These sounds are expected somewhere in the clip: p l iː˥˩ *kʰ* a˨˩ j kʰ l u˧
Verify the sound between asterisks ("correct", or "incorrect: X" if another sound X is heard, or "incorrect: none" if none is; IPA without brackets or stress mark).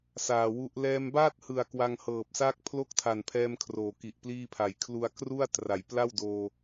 incorrect: pʰ